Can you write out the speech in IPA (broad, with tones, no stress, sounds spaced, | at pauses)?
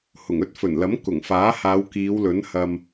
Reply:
h ʊ˨˩ ŋ ɵ˥ t̚ f ɵ˨˩ n l ɐ˨˥ m k ʊ˨˩ ŋ f aː˨˥ h aː˨˧ w k iː˨˧ w l ɵ˨˥ n h ɐ˧ m